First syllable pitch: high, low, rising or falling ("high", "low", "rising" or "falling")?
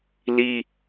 high